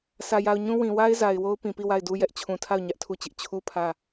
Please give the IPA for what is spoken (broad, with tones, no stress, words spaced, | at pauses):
sʰä˨ja˨ʊ̯ ɲũ˦ wĩ˨wa˦ɪ̯za˨ɪ̯ wo˦ʊ̯pĩ˨pi˦˨ wa˦˨ɪ̯du˦ jɛ˦ʔt͡ɕʰũ˨tʰa˦˨ʊ̯ ɲä˦ʔtʰu˦˨t͡ɕɪ˦ʔ t͡ɕʰu˦ pʰä˦˨